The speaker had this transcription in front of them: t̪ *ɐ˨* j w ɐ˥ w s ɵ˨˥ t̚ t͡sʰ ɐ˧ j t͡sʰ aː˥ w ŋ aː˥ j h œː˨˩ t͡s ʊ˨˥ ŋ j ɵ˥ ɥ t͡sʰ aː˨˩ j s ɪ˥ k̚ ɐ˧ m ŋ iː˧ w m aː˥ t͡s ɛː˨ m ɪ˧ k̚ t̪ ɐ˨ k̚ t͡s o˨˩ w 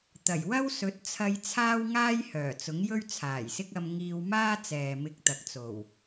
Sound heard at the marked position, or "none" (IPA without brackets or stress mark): ɐ˨˩